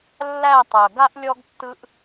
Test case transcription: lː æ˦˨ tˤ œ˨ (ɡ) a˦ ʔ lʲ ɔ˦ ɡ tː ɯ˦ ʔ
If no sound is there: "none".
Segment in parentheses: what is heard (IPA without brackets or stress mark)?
ɡ